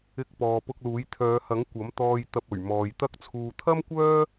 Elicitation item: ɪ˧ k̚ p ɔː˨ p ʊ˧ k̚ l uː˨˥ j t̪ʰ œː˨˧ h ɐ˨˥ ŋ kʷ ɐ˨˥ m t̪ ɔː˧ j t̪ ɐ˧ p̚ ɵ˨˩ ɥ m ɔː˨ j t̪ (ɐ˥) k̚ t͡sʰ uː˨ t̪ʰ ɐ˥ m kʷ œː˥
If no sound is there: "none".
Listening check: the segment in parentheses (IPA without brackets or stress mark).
ɐ˥